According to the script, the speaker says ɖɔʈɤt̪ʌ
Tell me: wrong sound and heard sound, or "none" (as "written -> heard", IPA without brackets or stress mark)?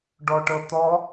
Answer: ʌ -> ɔ